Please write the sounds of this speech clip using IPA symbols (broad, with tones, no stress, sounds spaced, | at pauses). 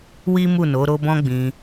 w i˦ m u˦˨ n o˨˦ ɾ o˦ b ɔ̃˦ ɡ͡b ĩ˧